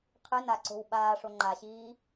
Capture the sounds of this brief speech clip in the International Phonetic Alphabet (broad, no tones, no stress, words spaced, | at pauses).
qʰɨna ǀo̤wɓaːʂo ŋ͡ǃaɕiː